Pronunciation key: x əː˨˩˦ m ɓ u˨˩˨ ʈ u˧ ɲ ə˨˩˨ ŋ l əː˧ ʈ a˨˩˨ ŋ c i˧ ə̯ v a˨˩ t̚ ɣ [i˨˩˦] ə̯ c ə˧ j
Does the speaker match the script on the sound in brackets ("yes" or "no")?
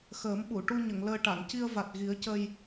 yes